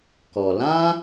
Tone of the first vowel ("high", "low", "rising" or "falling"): low